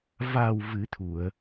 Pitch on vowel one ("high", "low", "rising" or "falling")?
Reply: low